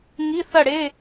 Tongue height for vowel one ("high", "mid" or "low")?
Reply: high